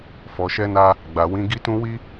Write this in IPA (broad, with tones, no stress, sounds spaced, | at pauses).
f ɔ˨ ʃ ɛ˧ n a˧ | ɡ͡b a˨ w ĩ˨˦ ɡ i˦ t ũ˦ w i˦